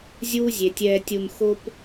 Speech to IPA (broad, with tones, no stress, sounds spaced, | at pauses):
zʲ uː˦ zʲ e˨ tʲ ɛː˧ tʲ u˧ n x o˦ p